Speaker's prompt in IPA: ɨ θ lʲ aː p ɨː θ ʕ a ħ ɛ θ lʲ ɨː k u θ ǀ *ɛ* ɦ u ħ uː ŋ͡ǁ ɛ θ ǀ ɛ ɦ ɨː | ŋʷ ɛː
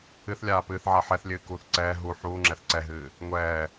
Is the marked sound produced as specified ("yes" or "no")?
no